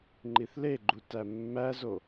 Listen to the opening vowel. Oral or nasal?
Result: oral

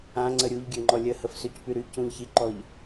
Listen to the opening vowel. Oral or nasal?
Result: nasal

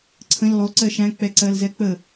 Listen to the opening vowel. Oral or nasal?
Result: nasal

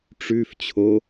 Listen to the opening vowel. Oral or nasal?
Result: oral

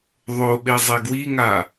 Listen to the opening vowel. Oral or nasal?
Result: oral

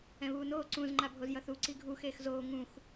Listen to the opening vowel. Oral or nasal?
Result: nasal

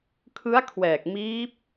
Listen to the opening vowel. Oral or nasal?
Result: oral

